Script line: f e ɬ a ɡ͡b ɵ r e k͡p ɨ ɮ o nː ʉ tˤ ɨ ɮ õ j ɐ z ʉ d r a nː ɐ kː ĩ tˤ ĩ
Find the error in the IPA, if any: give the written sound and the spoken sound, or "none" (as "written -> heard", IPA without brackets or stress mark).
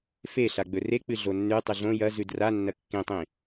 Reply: none